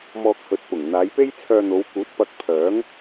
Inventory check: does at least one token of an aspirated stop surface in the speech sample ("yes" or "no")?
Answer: yes